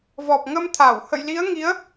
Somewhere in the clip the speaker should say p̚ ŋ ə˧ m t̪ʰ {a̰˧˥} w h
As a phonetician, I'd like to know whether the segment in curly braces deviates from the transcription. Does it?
yes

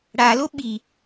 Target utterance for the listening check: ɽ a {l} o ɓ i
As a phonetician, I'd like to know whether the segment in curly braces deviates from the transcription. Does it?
no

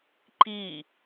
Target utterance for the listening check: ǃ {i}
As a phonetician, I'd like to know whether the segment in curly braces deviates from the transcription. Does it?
no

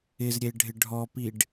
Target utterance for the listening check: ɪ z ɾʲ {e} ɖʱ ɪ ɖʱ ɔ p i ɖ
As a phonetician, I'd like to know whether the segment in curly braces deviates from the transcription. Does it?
no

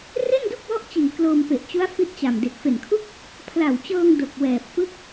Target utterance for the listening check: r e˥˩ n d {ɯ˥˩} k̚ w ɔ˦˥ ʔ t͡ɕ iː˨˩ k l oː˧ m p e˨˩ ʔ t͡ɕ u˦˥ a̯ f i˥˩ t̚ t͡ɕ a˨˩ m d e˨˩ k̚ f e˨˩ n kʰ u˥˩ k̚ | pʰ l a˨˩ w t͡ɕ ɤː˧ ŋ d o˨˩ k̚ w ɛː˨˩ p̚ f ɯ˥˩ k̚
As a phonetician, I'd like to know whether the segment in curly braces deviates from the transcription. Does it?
yes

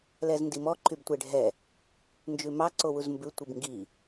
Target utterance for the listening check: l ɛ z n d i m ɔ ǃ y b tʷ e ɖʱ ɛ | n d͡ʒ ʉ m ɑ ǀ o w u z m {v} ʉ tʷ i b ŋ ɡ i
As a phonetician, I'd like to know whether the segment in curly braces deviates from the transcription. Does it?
yes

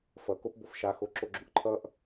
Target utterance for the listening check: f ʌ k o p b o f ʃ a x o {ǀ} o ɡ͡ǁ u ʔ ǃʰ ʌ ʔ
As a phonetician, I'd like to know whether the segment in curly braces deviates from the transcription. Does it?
yes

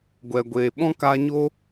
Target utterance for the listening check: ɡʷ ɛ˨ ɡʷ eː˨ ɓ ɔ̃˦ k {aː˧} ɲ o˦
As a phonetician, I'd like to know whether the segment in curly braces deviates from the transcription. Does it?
no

